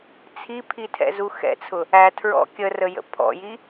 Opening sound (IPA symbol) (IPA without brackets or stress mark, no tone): t͡sʰ